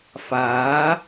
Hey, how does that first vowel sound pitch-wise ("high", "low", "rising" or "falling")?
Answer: rising